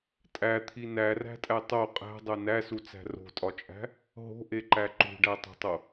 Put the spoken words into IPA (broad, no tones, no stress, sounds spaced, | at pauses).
tʼ æ t̪ʰ i n æ r æ̤ tʼ æ tˤ o qʼ æ̤ dˤ o n æ s u t͡s æ̤ r o̤ tʼ ɒ t͡ʃʼ æ̤ | ɦ o̤ ʔ e ǃ æ ǃ ṳ ɖ æ tˤ o̤ tˤ o